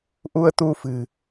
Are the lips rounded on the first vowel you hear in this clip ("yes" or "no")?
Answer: yes